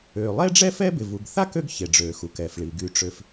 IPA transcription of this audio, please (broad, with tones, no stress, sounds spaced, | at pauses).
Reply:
øː˩ lˠ ɛ˥ ɖ͡ʐ ɛː˥ f ɛ˥ b ɪ˩ v u˩ ɡ θ a˥ k ø˥ ɡ ç e˩ ɖ͡ʐ øː˩ x u˩ k ɛ˩ f ɭ i˩ ɡ y˩ ʈ͡ʂ ø˩ f